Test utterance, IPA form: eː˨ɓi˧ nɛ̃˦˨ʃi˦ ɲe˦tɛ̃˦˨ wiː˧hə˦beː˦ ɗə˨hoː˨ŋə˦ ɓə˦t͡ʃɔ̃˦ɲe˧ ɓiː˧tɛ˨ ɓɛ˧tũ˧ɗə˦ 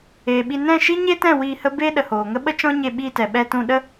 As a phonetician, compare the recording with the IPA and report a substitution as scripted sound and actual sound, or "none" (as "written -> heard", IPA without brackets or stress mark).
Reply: none